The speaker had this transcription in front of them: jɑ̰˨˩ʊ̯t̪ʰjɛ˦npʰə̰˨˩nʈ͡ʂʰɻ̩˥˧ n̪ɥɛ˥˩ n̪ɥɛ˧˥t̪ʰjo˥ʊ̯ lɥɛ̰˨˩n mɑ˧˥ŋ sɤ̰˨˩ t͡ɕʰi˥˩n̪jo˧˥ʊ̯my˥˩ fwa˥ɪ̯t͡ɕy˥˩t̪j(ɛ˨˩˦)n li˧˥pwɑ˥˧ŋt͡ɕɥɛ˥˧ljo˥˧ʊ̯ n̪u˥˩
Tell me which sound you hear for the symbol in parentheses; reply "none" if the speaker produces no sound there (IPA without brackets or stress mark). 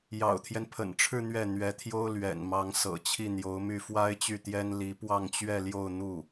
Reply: ɛ˥